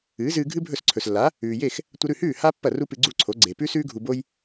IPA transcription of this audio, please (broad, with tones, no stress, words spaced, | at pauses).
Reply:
ɨː˩˥zɨː˧ ɡʱɨ˥bʱɵ˥˩s ǀʰɵ˩slːa˩˥ | ʉː˩je˥˩x | tʷɐ˧ɾʉ˥˩hʉː˥˩ ha˥ pːɐ˥˩ ru˥pɨ˧ɡ͡ǀu˥˩ǀʰo˩˥ ɡ͡ǀe˩pʉ˥sʉː˥ ɡʱu˧bo˥j